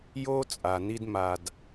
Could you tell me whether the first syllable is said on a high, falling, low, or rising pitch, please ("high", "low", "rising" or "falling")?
high